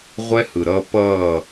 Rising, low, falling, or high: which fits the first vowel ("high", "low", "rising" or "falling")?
high